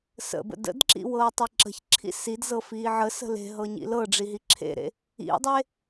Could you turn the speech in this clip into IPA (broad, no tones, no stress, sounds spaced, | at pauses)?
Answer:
s ə̰ b ə̰ d ə̰ d ǁ ḭ w ɤː tˤ i ǁ ə̤ ç ǁʰ ḭ s i d z ɤ f iː ʕ ə s ə̤ l e̤ ɦ ɤ ɲ ḭ l ɤ ɖ͡ʐ i ɦ i ǁʰ ḛ ɾ ḛ | ḭ dˤ e